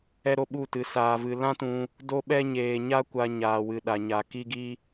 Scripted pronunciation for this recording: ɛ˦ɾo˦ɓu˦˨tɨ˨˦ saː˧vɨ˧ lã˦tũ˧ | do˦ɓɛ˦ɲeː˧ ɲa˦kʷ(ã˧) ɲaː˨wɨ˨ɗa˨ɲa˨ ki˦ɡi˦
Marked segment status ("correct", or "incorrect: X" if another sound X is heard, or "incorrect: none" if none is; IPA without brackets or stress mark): incorrect: a˧